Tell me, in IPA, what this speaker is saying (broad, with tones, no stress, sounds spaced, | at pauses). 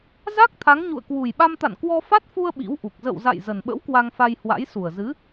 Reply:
z a˦˥ k̚ t̪ʰ a˨˦ ŋ ɲ ṵ˧˨ ə̯ k w u˨˩ j ɓ a˧ m t̪ a̰˧˨ n k w ɔ˧ f a˦˥ t̚ f u˧ ə̯ ɓ ḭ˧˥ w ʔ u˨˩ k̚ z ə̰˧˨ w z a̰˧˨ j z ə˨˩ n ɓ ə̰˧˥ w k w a˧ ŋ f a˧ j h w a̰˧˥ j s u˨˩ ə̯ z ɨ˨˦